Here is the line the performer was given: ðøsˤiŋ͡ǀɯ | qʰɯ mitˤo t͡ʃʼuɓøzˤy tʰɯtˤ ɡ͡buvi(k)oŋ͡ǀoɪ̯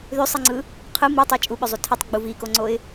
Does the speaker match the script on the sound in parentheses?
yes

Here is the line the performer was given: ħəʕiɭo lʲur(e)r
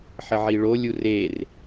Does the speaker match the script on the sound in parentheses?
yes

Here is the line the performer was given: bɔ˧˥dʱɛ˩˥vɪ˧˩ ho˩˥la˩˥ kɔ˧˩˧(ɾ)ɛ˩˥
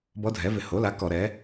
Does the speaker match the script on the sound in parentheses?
yes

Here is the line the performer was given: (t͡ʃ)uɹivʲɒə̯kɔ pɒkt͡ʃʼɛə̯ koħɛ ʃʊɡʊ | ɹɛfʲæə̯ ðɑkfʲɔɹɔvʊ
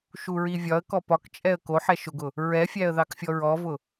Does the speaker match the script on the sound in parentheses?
no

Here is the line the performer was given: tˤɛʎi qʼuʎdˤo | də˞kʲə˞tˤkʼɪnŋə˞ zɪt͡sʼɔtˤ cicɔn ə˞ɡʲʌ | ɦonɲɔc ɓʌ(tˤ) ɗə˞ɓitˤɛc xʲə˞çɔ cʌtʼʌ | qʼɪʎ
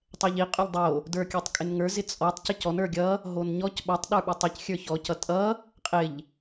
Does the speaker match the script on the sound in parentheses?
yes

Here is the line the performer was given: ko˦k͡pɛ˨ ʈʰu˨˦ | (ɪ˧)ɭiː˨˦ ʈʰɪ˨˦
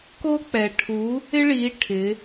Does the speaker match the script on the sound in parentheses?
no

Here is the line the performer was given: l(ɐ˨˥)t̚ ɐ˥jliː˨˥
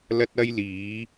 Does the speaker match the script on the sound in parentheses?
no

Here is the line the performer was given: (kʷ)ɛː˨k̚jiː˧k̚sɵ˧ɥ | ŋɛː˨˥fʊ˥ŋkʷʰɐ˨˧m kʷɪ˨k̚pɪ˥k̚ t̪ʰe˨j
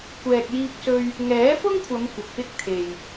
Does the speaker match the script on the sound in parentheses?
yes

